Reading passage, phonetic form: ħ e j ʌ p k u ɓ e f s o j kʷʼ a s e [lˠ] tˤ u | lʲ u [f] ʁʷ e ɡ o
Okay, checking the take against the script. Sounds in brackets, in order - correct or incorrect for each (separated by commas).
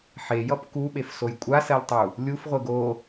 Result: correct, correct